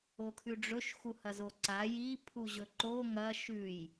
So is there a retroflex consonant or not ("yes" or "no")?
yes